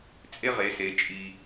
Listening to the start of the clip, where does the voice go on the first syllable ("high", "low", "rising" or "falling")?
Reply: high